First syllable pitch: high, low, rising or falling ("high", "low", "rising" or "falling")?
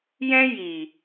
high